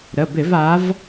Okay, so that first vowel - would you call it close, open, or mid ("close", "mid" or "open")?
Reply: mid